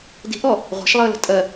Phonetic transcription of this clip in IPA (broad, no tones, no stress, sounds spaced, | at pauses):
d i̤ ʔ ɔ | ʁʷ a̤ ʃ lˠ əː l ə̤ tʼ ɜ